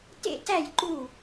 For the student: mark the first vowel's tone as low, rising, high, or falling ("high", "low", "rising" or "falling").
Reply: falling